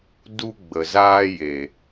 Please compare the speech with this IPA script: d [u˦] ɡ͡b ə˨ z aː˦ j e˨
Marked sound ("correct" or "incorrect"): correct